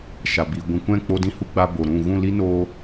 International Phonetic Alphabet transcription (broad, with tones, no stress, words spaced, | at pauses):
ʃa˨bi˨ ɡʷĩ˨kʷɛ̃˦˨ k͡po˧dĩ˧hu˧ ɡ͡ba˧bo˨ ɾũ˦˨ ɣũ˦˨li˦ noː˧